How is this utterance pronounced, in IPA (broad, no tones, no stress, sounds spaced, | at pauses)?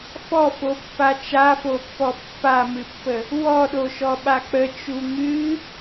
f ɔ f o pː a t͡ʃ a f o pː ɔ pː a m ɨ pː ə | w ɔ ɗ o ʃ ɔ ɓ a k͡p ə t͡ʃ u ŋ ɨ